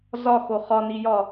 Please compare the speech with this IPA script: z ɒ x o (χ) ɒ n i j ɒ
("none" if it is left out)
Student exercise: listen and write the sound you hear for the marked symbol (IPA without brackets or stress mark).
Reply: χ